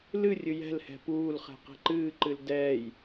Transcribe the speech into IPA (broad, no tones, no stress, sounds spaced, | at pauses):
l ɨ rʲ ɨ j ɛ̤ l h ɛ̤ p uː l χ ɛ̤ q ɛ̤ ǃ ɨː ǃ ɨ l d ɛː j